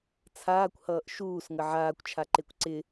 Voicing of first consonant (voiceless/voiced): voiceless